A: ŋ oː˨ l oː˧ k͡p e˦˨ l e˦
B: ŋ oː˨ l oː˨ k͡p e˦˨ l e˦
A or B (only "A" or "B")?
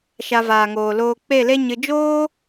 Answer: A